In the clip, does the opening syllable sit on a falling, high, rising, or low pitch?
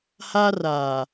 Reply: high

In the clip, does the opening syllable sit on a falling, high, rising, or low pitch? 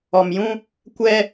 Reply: low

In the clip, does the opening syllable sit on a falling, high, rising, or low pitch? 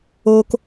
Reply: high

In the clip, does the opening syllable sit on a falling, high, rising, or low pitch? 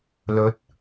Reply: rising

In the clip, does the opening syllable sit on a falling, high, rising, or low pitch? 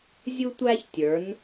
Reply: high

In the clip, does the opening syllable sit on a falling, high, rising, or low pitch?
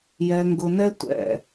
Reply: low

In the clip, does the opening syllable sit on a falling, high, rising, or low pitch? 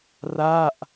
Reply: falling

